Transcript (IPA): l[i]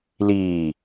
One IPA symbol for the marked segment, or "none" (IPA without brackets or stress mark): iː